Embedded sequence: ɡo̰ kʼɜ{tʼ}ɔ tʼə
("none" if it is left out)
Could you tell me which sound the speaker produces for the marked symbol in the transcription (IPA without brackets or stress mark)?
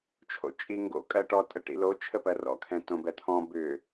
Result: ʈ